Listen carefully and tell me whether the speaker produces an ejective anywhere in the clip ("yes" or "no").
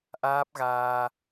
no